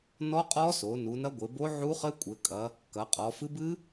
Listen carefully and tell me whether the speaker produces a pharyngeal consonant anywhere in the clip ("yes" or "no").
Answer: yes